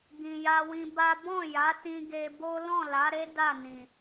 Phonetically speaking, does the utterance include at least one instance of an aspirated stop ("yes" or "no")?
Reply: no